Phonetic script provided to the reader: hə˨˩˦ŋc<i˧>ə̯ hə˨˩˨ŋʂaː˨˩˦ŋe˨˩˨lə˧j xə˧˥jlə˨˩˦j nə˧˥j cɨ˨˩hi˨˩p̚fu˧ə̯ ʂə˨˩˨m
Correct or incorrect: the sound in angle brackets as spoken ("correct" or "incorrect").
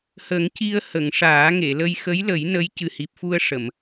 correct